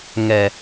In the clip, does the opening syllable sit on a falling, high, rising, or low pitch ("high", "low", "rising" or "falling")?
low